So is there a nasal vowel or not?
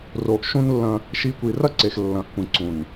yes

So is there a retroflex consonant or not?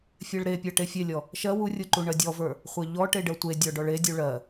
yes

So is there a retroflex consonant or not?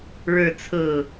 yes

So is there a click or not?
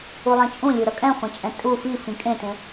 no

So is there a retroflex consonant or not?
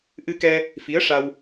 yes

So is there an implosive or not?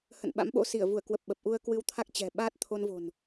yes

